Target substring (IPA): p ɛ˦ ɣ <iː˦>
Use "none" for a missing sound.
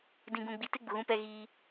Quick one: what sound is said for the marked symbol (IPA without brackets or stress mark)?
iː˦